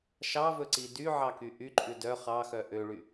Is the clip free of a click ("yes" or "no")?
no